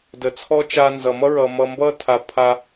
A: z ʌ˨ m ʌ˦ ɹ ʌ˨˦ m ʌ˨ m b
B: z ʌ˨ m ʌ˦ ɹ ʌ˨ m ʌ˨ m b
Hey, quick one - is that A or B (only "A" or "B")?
B